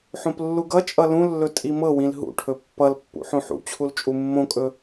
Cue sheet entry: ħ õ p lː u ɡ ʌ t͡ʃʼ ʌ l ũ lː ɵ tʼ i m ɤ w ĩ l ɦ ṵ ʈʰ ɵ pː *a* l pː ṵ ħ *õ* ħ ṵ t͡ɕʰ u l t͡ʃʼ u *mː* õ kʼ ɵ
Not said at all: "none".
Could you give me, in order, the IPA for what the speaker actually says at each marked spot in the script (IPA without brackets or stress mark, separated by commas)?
ʌ, õ, mː